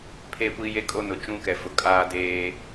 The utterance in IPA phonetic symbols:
pʰ e˦˨ kʷ i˦ j e˦ kʼ o˦ n ʊ˨ t͡ʃ ũ˦ k ɛ˨ f ʊ˨ kʼ aː˦ d eː˦

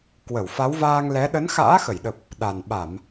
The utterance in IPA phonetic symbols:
k w ə˧˩ w f a˨˦ w v aː˧ ŋ l ɛ˨˦ ɗ ə˨˦ n x a̰ː˧˥ x ə˧˩ j ɗ ə˨˩ p̚ | ɗ a˨˩ n ɓ a˧˩˨ m

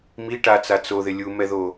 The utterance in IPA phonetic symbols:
m i ʈ a t͡s a t͡s o ð ɪ lʲ u m ɛ ð o

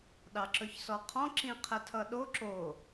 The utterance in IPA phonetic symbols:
ɗ ɑ ǁ ɵ ç s ɔ qʰ ɔ̃ ǁ ĩ qʰ ə tʰ ʌ ɗ o ǁ o

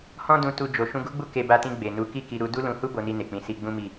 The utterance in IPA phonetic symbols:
h ɔ̃˦ d ũ˧ t u˧ d͡ʒ o˨ ʃ ũ˧ ɡ u˦ ɡ͡b u˦˨ k e˧ b a˧ t ĩ˧ ɡ͡b e˨ n u˨˦ k i˦˨ k i˧ ɾ u˧ d u˦ l ũ˧ h u˦ b o˧ n i˧ n e˨ k͡p ĩ˨˦ s i˧ ɡ͡b ũ˦ m i˦˨

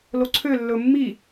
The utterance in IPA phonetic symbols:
l o ǀʰ ø lː ɵ mː i

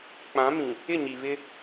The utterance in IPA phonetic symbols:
k͡p ã˨˦ m ĩ˨ | ɪ˦˨ ɲ i˨ β ɪ˦

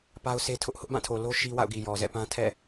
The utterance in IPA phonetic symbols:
p a˦ ʊ̯ s e˦ tʰ ʊ˦ ʔ h ʊ˦ ʔ b ã˦˨ tʰ o˨ l o˦ ʃ i˦ w a̰˦˨ ʊ̯ ɡ i˨ j ɔ˨ z ɛ̰˦˨ p ã˦ tʰ ɛ̰˦˨

